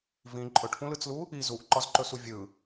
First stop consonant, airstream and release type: click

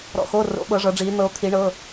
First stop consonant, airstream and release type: implosive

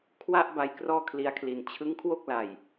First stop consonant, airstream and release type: aspirated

